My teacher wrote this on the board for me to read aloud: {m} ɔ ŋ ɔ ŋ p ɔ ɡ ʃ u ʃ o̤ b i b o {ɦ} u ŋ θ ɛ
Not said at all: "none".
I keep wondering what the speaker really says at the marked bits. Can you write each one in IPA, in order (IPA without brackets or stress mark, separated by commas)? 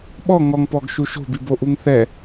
ɓ, ʔ